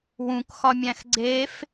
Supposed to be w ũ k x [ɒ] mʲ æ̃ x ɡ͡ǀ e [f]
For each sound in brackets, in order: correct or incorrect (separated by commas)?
correct, correct